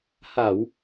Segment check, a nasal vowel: absent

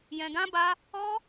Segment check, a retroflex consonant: absent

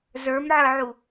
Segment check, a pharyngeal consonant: present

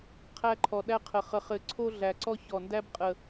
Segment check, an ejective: present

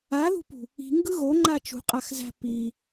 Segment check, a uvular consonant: present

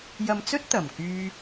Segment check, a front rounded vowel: present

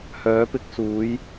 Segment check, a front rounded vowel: present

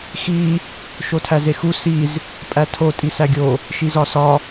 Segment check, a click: absent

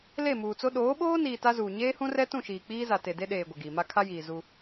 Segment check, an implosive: present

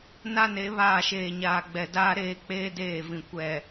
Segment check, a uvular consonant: absent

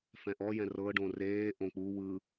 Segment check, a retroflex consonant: present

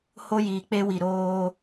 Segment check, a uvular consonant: absent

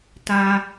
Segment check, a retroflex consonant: absent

